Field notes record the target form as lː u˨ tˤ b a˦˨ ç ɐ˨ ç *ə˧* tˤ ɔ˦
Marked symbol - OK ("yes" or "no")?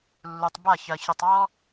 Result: yes